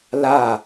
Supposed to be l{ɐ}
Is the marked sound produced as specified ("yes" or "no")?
no